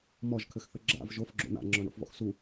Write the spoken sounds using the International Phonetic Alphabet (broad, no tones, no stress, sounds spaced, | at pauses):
m ɔ ʒ kʰ ɘ x θ ɘ ɡ͡ǁ a̰ v ʒ o f ɡ͡ǁ o̰ n̪ a̰ ŋ͡ǁ ɔ ɳ o̰ f v ɔ̰ x s u